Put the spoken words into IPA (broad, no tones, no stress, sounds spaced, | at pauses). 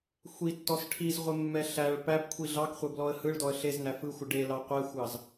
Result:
xʷ i tː ɔ s ʈʰ i z ʁʷ ɪ mː ɛ ɬ æ ɭ p æ b kʷʰ i ɮ ɑ k χʷ ɛ b l ɔ ə̯ h ɯ ɭ d ɔ ə̯ ɬ e z n æ f ɯ xʷ ɪ ɖ e l ɑ qʷ ɛ xʷ ɑ z